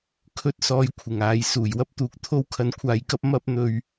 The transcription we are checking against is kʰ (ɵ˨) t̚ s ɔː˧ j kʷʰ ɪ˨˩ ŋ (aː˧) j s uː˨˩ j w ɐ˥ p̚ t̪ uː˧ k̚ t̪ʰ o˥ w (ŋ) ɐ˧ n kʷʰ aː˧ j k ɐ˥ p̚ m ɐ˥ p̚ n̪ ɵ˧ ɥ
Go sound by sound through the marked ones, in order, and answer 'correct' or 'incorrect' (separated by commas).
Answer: incorrect, incorrect, incorrect